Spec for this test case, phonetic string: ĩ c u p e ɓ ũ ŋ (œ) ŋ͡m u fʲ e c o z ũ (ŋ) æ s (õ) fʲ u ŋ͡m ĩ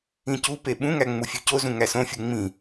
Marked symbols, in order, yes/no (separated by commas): no, yes, yes